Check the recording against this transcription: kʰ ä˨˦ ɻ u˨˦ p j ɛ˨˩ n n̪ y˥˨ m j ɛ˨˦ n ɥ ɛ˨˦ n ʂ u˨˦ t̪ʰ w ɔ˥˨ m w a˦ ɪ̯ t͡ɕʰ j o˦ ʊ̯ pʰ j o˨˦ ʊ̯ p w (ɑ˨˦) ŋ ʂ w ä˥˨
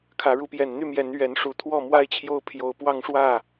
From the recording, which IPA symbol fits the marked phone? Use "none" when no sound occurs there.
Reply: ɑ˦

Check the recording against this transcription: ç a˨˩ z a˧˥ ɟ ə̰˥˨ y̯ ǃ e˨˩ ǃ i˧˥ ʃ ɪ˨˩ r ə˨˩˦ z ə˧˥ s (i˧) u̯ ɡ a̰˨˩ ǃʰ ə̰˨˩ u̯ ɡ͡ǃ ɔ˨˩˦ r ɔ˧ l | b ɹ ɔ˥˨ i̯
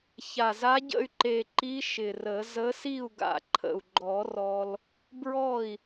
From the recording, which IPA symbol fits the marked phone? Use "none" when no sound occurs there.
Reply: i˥˨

